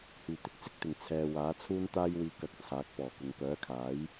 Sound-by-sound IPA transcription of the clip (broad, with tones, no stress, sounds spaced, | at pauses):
h yː˨˩ t̪ ɪ˧ k̚ t͡s ɪ˥ k̚ t̪ ɪ˨˩ ŋ t͡sʰ ɛː˨ w aː˨˥ t͡sʰ uː˥ n t̪ aː˥ j w iː˧ k ɐ˧ k̚ t͡sʰ aː˨˥ k̚ p ɔː˨˩ k ʊ˨ ŋ p œː˨˥ kʰ aː˨˥ j